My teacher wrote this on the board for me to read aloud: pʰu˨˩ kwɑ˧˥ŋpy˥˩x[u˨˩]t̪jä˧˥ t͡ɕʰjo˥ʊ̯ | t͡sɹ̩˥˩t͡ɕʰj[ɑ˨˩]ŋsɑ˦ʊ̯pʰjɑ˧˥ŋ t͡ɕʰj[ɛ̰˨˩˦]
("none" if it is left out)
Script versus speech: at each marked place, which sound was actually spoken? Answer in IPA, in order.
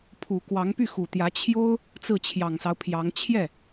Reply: u˨˩, ɑ˨˩, ɛ˥˩

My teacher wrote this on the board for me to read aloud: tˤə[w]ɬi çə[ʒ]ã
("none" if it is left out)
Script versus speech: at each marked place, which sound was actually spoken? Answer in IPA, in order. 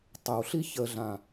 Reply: w, ɮ

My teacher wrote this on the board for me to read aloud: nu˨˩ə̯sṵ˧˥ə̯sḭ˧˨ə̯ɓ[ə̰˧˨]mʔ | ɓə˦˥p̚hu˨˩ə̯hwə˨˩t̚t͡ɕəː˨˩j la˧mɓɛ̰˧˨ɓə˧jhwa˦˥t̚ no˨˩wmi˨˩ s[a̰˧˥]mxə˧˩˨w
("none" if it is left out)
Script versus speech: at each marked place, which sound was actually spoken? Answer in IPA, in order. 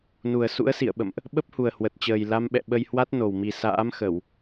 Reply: ə̰˧˨, a̰ː˧˥

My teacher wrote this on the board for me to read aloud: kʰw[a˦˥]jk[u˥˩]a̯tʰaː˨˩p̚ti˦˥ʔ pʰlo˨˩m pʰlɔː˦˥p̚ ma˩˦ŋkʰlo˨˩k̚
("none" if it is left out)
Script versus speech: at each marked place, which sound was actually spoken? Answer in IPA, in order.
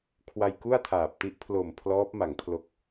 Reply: a˧, u˥˩

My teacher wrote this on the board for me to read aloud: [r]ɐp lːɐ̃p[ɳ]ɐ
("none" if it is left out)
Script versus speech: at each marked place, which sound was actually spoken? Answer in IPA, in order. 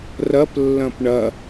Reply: r, ɳ

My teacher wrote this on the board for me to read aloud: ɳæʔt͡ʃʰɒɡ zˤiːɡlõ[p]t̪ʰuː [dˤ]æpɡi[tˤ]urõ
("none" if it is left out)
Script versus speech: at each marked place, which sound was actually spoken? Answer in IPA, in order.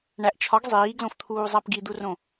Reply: f, zˤ, d̪

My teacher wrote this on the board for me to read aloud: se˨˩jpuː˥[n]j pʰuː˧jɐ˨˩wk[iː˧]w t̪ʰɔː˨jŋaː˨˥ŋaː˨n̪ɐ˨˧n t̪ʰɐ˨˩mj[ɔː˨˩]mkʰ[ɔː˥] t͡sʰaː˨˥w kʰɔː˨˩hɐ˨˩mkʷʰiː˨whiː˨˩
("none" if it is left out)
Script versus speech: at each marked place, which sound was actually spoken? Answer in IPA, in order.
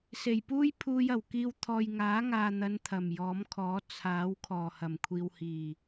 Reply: none, iː˧, ɔː˨˥, ɔː˨˥

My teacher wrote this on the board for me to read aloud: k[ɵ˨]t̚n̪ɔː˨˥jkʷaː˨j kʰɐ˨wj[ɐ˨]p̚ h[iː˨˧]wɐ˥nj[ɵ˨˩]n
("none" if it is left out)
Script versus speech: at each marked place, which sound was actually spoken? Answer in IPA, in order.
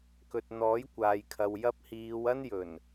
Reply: ɵ˨, ɐ˧, iː˨˧, ɵ˨˩

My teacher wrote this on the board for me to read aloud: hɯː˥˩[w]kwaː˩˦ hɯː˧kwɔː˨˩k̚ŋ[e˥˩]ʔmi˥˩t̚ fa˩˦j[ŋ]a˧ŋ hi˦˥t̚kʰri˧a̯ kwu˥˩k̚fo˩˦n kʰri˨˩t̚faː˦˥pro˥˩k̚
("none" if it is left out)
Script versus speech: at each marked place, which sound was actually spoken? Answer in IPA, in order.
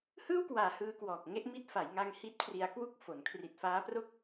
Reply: w, e˥˩, ŋ

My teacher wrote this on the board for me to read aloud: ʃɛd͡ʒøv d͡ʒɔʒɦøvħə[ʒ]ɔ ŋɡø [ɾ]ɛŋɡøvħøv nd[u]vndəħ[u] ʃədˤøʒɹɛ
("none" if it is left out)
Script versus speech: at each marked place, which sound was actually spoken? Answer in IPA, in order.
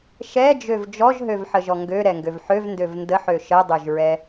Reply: ʒ, ɾ, ø, ø

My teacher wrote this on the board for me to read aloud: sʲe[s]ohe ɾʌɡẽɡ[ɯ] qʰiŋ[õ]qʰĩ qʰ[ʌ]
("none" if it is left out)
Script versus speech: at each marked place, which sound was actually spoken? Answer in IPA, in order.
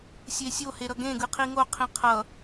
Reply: sʲ, ɯ, o, ʌ

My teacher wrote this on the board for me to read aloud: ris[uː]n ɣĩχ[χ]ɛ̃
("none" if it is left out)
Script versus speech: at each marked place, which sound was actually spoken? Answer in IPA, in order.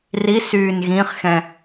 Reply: yː, x

